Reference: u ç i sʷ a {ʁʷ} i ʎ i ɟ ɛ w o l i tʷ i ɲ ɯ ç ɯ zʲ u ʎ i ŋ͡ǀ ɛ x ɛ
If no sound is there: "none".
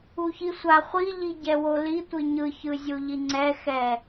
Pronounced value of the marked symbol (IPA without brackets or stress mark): χʷ